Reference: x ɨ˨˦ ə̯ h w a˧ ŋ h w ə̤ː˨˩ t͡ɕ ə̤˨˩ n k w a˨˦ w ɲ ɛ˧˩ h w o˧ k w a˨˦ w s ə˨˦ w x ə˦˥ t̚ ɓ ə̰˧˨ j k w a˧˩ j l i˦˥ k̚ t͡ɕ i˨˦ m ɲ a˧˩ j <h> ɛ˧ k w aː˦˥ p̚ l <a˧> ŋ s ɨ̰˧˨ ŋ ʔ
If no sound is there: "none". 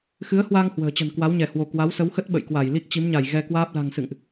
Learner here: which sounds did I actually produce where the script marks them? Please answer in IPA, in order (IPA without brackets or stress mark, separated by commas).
ɣ, a̤˨˩